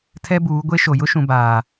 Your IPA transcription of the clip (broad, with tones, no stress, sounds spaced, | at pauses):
tʰ ɛ˦ b uː˨˦ ɡʷ e˦ ʃ o˨ j ʊ˦ ʃ ũ˨ b aː˨